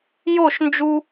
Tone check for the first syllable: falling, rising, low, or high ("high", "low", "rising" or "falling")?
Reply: falling